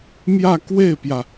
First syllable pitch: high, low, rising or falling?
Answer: falling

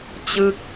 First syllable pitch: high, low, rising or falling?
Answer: falling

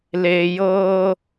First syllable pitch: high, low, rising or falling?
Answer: low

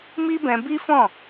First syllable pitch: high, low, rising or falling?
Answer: high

